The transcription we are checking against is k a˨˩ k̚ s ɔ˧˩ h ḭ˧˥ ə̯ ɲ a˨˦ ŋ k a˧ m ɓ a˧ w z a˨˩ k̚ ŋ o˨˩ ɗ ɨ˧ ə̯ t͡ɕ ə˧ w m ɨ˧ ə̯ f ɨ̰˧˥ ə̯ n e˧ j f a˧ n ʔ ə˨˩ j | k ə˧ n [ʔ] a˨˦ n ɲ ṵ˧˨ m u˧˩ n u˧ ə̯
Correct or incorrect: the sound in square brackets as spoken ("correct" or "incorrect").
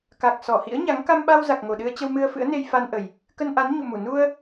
correct